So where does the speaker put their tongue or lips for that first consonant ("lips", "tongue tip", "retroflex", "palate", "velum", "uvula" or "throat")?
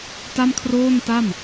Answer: tongue tip